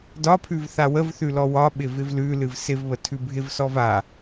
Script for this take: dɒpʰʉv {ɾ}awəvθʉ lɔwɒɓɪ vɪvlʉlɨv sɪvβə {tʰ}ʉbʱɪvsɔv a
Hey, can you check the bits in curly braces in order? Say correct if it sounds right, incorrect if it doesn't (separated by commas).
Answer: incorrect, correct